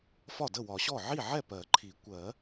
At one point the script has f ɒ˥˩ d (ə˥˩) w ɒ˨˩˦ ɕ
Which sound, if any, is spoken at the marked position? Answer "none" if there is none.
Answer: ə˥˩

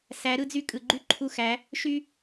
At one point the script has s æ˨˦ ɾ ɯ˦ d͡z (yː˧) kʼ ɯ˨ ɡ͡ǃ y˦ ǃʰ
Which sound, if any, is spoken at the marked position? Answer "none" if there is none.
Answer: y˧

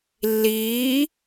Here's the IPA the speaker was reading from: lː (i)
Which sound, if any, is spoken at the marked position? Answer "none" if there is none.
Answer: iː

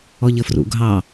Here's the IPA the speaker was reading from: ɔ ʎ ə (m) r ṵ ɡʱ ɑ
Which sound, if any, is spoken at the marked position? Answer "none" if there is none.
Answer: f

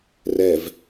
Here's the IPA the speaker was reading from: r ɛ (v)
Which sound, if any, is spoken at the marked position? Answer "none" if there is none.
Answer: v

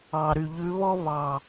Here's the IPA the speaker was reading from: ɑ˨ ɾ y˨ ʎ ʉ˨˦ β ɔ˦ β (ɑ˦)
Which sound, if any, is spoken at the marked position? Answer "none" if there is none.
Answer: ɑ˨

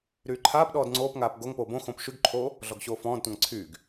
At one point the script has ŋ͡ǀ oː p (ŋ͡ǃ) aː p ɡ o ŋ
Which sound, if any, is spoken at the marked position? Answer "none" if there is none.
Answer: ŋ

